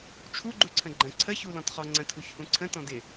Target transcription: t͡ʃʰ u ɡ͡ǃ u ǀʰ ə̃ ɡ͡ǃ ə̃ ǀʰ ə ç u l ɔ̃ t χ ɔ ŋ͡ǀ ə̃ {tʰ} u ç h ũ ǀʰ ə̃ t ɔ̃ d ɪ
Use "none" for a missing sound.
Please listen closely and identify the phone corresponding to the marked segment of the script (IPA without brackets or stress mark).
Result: tʰ